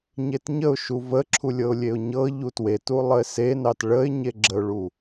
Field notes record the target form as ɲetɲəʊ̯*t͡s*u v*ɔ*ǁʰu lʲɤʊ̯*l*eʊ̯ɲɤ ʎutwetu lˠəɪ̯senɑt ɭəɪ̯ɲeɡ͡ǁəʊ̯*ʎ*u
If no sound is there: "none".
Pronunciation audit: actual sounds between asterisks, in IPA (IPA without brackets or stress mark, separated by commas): ʃ, ə, lʲ, ɭ